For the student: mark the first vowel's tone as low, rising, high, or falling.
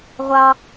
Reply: high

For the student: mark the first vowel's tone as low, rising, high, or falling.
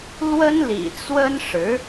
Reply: high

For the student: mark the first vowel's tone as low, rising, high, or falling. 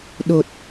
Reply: low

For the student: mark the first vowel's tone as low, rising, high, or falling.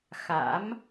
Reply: rising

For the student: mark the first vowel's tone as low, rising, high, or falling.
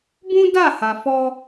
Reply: high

